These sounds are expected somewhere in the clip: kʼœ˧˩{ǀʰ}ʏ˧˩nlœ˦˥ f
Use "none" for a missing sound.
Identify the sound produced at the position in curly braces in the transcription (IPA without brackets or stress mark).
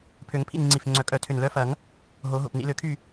tʰ